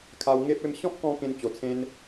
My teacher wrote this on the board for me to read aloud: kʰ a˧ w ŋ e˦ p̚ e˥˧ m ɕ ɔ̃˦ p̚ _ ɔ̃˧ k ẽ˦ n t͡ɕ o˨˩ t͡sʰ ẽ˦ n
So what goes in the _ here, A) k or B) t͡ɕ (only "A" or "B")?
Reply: A